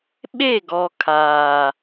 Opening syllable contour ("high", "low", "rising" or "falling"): falling